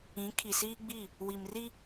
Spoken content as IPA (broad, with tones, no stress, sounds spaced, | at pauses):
ĩ˨˦ kʰ i˨ s iː˦ ɡ͡b i˦˨ | w i˨ m r i˦